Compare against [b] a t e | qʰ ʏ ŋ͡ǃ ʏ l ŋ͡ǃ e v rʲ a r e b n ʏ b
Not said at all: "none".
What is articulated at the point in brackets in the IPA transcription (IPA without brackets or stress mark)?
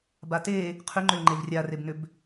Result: b